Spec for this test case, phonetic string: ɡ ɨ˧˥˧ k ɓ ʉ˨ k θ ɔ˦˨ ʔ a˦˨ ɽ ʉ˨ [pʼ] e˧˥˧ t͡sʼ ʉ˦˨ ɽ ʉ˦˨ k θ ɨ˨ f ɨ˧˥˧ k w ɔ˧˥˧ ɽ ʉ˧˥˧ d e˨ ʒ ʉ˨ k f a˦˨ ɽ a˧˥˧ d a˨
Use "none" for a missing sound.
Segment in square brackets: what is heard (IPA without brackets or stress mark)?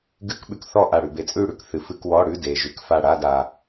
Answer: b